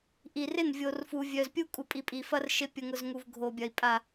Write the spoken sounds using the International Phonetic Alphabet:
ʔi˨rɪ˦˨n vʲo˨rfu˨ vʲœ˨zpʲu˦ kʼu˨pʼi˨pʼi˨fɐ˦r ʃɪ˦ pʲʊ˨ŋʊ˨zŋu˨v ɡʱo˨bʲɐ˨i̯ pʼa˨

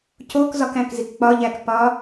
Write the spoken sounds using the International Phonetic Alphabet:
cokzɒkæ̃kzik k͡pɒʎækpɒ

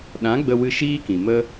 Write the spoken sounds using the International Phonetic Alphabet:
ɗã˨˦ɡ͡bə˧wɨ˧ ʃiː˦kĩ˨mə˦

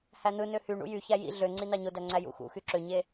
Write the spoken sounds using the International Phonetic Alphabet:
hæn̪ɯnø hyɳṵ jyçæ jḭ ɮøŋ͡ǀi nɑɲodæ ŋ͡ǀæjṵxṵxy ǁøɲe

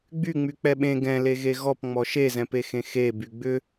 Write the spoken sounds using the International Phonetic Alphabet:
ɡ͡byŋ͡myk͡pɛ ɓẽ ɡɛ̃leɣe ɣɔpŋ͡mɔ ʃezɛ̃pexẽ xeby ɡ͡bʏ

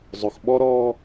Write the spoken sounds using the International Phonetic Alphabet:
zˤʊ˨xɓɔ˦ɾɔː˦

